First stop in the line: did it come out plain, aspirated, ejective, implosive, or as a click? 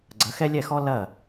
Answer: click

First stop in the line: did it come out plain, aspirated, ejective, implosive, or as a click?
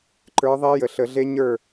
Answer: click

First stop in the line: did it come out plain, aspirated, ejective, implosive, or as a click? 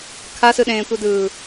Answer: aspirated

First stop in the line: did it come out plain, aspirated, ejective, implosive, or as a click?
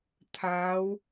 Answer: aspirated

